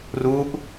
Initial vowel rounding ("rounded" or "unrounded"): rounded